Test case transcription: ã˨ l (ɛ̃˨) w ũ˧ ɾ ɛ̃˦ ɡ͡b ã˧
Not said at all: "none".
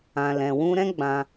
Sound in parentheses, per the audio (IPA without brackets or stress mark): ɛ̃˨